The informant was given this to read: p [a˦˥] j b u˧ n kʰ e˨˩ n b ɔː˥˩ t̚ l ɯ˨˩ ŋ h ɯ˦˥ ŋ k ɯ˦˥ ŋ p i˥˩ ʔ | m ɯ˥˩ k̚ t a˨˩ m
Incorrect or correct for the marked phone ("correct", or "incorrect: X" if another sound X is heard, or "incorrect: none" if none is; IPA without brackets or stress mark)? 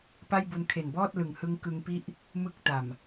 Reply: incorrect: a˥˩